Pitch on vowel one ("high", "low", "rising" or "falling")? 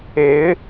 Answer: rising